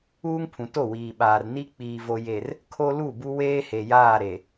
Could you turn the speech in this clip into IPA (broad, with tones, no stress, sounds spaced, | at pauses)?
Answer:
uː˦ ŋ pʰ ũ˨ t o˦˨ w iː˨ ɓ aː˨ r n i˦ k͡p iː˨ v o˨ j e˨ r | kʰ o˦ l u˦˨ b u˦ w eː˦ h e˨ j aː˦˨ ɾ e˨